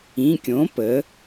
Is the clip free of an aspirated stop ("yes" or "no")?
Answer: yes